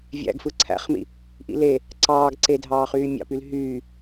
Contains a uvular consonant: yes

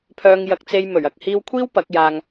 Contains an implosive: no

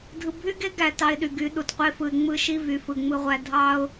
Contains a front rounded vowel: yes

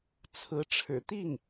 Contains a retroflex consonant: yes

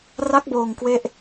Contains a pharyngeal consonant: no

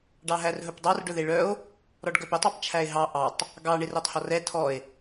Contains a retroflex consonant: yes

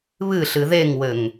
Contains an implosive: no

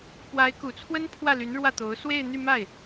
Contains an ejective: no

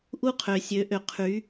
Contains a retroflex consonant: no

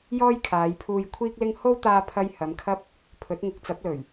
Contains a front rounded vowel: no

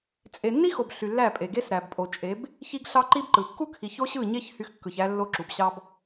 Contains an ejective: yes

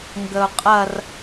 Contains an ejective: yes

